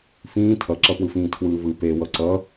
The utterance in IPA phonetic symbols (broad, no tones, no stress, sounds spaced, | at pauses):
f ĩː tʰ ʌ ǁ ʌ p w ɯ f ĩː tʰ w ɯː v ɯ p e w ʌ ǀ ʌ